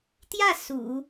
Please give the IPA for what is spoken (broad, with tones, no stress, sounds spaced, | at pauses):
t̪ j ä˥˩ s ṵ˨˩˦